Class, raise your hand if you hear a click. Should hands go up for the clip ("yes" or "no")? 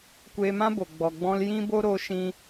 no